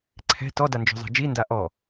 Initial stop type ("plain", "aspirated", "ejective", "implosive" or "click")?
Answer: click